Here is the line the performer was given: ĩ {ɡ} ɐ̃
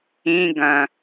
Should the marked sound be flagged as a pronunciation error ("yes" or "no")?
no